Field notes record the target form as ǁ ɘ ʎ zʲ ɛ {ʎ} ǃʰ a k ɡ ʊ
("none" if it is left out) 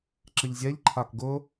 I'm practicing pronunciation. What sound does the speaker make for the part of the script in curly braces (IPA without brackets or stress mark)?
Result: ʎ